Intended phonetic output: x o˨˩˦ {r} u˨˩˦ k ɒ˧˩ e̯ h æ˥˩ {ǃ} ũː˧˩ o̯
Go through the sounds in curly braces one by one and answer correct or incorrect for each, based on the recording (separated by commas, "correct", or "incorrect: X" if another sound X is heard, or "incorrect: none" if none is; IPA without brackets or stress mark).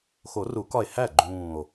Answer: correct, incorrect: ɡ͡ǃ